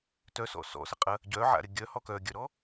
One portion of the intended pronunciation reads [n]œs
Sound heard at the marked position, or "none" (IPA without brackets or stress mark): t